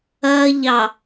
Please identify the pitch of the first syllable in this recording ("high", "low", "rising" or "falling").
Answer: high